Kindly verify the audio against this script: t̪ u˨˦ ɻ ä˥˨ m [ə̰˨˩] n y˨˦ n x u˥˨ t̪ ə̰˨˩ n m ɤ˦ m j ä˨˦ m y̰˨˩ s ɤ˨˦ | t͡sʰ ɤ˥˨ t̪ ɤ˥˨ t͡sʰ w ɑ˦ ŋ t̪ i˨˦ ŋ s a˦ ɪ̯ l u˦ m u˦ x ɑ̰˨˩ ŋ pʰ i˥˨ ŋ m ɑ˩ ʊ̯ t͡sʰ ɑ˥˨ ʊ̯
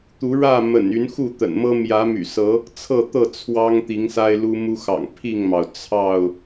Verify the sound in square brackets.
correct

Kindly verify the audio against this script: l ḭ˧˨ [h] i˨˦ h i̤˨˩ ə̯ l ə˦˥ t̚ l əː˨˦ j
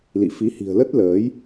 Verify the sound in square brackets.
incorrect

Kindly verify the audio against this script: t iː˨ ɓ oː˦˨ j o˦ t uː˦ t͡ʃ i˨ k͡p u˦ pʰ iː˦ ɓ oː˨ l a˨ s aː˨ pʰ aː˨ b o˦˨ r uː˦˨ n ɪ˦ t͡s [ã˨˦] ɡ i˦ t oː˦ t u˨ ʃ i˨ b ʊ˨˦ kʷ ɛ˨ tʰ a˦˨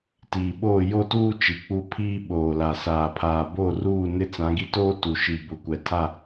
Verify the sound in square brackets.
correct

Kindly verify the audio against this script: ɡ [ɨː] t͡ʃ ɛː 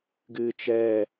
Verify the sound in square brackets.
correct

